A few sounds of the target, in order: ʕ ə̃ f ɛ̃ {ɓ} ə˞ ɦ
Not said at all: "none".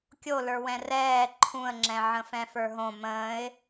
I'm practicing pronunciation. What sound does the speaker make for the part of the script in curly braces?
f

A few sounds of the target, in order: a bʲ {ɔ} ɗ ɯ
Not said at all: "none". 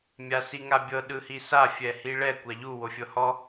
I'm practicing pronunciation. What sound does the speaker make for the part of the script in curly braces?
ɤ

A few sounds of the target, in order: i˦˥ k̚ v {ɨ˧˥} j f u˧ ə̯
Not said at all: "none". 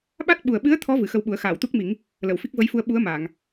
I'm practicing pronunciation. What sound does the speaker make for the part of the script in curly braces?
ə˧˥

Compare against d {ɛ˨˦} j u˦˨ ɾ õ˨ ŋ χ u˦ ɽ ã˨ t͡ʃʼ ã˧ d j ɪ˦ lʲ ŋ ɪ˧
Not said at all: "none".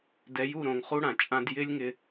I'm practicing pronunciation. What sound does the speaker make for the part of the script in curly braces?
ɛ˨˦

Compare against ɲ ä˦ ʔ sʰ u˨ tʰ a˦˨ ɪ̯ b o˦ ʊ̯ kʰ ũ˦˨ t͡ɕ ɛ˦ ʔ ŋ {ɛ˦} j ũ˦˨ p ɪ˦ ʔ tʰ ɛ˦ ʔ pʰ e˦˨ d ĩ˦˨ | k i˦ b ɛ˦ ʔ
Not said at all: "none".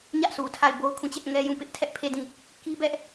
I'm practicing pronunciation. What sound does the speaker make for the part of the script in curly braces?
ɛ˦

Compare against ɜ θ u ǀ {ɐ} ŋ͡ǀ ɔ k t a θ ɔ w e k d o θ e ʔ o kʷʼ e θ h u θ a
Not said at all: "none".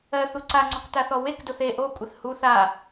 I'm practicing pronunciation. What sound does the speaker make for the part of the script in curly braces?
a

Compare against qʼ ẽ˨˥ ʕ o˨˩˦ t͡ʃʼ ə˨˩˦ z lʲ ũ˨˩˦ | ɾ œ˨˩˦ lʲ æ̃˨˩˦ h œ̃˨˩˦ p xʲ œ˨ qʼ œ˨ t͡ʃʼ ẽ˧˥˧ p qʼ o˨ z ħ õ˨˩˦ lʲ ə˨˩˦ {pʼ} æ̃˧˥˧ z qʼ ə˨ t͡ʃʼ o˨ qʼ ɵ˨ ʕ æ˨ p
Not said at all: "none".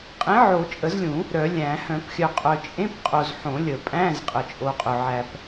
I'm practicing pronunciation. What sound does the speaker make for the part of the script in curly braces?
pʼ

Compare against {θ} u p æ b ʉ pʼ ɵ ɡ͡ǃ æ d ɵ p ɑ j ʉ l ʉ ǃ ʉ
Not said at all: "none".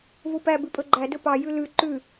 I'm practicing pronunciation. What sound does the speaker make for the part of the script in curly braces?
v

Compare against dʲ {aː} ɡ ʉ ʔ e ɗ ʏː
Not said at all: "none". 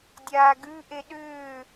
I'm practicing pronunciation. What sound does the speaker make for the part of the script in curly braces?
aː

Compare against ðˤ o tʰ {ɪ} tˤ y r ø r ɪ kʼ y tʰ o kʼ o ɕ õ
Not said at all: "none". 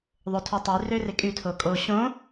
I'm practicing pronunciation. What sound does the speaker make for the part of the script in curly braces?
y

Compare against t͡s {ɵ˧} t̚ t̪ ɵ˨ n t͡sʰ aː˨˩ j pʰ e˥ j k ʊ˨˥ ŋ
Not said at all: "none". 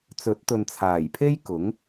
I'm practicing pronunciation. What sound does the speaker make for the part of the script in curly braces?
ɵ˨˥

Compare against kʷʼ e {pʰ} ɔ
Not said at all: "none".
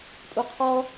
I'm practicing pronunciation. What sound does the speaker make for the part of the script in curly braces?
qʰ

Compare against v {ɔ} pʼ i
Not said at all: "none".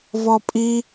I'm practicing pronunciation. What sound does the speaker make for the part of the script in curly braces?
ɔ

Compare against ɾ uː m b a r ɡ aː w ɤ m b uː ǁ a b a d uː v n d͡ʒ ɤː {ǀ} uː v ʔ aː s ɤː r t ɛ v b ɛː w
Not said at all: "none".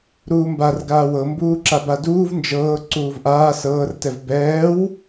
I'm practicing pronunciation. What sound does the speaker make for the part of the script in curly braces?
ǀ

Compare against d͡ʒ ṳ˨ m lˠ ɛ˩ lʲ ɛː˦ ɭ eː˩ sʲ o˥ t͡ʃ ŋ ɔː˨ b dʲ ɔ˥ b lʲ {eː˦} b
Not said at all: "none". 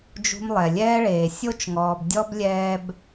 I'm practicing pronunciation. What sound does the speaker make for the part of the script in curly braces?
ɛː˦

